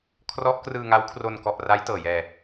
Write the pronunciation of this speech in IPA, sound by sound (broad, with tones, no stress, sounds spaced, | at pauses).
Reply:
kʰ r ɔ˦˥ ʔ k r ɯː˧ ŋ a˦˥ w kʰ r o˧ n k ɔ˨˩ ʔ r a˦˥ j t ɤː˨˩ j ɛː˧